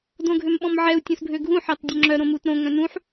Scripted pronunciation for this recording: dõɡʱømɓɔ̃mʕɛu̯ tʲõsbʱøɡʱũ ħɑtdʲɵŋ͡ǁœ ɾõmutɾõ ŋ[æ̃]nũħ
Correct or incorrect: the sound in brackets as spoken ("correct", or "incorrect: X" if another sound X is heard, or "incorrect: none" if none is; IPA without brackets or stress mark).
incorrect: œ̃